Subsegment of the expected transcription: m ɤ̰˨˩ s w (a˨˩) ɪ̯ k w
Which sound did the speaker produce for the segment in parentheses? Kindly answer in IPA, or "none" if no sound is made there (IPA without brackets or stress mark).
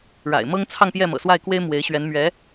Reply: a˥˩